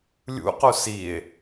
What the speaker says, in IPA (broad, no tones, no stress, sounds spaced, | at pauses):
lʲ ṵ q u s i e̯